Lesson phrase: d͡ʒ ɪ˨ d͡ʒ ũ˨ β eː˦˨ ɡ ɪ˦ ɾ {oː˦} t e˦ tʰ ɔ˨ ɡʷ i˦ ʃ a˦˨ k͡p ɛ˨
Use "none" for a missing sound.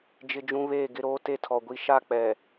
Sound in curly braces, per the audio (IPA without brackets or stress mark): oː˦